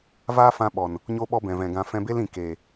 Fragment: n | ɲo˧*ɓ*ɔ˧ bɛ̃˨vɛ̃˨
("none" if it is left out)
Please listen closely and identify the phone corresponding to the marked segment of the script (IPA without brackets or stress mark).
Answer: ɓ